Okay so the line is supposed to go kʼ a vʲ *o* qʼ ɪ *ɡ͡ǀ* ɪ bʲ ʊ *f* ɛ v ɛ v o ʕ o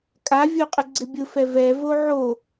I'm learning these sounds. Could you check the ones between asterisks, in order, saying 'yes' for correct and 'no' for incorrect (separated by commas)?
yes, yes, yes